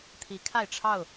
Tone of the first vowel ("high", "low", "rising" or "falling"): rising